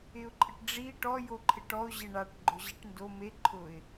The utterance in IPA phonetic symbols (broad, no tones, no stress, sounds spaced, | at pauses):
ɪ ʊ̯ ǃʼ ɪ ʈ ɖ͡ʐ i ʈ ɔ j o ǃʰ ɪ ʈ ɔ ʊ̯ ʑ e ɳ a ʈ ɡ͡ǃ ʊ ʑ i ʈ n d o m e ǃʰ ʊ ɪ̯